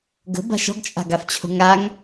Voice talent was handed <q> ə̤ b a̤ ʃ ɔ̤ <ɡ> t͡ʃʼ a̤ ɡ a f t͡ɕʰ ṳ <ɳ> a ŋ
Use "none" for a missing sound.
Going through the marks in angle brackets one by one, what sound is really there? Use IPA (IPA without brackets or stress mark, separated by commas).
ɡ, ɡ, ŋ